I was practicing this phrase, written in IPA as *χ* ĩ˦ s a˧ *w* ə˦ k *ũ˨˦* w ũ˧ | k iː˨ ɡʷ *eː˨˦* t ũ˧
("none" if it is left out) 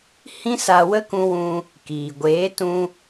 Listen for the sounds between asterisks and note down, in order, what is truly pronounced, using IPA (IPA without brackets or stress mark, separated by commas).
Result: h, w, ũ˧, eː˨˦